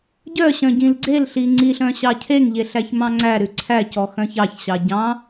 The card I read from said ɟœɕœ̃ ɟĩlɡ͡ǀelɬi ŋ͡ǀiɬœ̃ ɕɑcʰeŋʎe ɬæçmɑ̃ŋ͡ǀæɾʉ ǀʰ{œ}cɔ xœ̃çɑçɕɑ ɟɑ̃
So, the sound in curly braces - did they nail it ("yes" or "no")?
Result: no